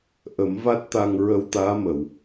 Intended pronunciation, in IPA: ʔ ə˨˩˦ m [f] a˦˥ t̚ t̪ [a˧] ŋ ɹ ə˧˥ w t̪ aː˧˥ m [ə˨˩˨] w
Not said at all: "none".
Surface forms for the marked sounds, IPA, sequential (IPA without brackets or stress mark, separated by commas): v, a˧, ə˨˩˨